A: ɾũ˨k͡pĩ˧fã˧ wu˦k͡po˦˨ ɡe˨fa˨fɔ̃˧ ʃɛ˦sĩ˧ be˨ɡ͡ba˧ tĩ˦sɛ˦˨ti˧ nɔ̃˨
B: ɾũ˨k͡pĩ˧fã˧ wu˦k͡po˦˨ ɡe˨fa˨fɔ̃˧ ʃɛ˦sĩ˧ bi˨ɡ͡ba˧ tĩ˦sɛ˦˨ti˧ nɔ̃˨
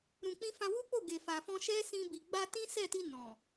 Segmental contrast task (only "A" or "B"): B